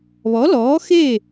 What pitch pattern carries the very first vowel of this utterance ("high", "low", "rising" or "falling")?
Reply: rising